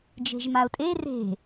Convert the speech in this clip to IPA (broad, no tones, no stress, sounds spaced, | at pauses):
d͡ʒ e̤ ʒ m a ʊ̯ tʼ e r e̤